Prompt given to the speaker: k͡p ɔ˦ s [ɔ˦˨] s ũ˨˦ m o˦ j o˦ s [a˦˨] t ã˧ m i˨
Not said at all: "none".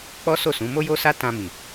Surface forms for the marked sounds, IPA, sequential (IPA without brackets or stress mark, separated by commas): o˦˨, a˦